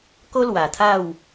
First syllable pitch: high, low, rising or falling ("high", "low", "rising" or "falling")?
high